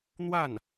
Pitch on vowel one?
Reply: falling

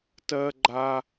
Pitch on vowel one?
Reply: high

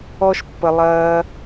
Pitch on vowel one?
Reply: high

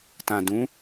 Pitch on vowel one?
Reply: low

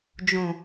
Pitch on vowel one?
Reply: low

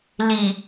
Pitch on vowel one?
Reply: low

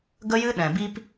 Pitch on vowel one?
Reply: high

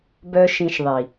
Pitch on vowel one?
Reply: high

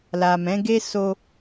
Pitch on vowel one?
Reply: low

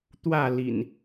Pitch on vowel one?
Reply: falling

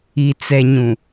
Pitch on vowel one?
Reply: low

